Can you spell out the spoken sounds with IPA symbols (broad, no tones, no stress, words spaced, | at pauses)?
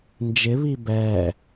nd͡ʒɪβi bɛ